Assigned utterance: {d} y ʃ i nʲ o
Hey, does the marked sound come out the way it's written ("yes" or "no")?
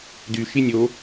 yes